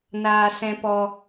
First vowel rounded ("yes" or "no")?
no